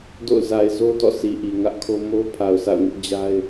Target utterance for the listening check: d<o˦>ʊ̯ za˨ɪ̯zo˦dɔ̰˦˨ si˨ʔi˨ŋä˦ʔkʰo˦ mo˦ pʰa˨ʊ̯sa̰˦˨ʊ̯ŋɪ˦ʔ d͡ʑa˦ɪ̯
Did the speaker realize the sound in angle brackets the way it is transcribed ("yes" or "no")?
no